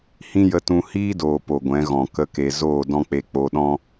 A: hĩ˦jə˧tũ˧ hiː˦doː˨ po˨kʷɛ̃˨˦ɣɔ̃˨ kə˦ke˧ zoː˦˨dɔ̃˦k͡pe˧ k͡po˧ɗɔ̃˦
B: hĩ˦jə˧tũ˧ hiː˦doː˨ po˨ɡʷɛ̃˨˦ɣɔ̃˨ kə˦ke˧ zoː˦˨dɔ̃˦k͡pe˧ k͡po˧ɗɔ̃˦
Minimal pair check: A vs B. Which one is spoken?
B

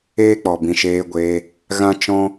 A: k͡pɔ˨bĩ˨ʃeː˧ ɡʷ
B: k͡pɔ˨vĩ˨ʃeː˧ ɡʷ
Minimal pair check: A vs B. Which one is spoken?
A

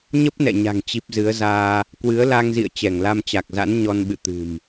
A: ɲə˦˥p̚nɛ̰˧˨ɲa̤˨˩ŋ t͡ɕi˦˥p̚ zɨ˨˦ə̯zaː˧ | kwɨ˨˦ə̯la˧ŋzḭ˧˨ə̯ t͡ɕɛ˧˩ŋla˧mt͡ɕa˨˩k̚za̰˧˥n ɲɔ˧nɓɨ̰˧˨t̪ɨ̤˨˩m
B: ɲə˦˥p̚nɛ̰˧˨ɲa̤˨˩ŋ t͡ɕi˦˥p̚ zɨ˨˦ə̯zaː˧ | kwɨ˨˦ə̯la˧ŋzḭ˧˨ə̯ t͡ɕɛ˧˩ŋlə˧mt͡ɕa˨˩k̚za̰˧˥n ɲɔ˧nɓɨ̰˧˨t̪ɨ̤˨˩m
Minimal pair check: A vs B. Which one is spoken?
A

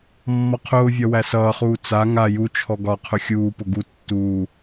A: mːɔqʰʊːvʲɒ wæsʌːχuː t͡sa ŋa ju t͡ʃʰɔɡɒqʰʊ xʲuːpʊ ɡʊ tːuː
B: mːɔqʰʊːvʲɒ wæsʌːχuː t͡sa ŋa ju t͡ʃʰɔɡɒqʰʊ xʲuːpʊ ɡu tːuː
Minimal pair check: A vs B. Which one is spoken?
B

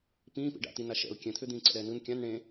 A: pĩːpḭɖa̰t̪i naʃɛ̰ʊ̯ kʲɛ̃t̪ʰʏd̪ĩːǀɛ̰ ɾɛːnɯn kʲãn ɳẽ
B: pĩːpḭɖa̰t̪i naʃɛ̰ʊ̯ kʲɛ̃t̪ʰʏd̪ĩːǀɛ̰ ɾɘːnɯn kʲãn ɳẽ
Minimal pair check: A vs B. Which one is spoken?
A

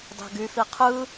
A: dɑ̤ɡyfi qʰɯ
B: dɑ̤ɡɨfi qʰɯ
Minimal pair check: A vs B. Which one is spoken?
A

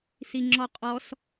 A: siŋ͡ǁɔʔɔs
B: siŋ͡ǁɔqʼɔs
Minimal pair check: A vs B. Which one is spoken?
B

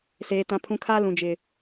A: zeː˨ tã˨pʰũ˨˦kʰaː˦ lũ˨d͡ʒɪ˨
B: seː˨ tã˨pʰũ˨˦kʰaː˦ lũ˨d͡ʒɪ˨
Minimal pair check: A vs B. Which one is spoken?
B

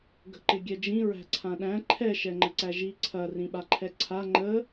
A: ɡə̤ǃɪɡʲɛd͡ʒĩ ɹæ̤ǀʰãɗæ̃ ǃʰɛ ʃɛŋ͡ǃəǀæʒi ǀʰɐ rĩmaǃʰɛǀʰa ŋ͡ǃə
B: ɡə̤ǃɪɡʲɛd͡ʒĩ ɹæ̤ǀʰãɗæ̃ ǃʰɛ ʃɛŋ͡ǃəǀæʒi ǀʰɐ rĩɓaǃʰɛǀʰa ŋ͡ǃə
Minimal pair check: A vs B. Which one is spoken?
B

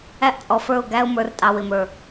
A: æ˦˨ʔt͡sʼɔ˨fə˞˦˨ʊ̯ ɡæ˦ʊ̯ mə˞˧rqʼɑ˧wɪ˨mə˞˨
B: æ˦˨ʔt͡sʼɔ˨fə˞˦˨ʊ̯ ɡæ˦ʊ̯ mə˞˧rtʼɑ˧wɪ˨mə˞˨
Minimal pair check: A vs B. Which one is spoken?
B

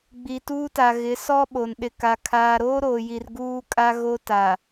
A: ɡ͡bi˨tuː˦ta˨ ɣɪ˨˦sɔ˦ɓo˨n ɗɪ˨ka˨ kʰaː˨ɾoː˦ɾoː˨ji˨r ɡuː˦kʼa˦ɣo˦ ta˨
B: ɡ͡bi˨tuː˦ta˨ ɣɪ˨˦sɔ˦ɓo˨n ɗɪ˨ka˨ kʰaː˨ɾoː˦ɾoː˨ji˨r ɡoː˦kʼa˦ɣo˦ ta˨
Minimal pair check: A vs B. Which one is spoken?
A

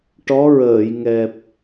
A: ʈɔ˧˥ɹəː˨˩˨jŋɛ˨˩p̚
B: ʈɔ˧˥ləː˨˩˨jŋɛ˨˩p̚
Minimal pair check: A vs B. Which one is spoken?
A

